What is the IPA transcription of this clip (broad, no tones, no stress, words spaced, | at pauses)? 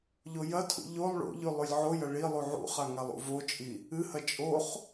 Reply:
ʎojɐtʰṵ ʎolˠ ɭo̰ʎʉ lˠʉlʲʕojɐ ɭilˠu ʕṵχa ŋalˠṵvot͡ʃʼi | ɨhɐ t͡ʃʼoχ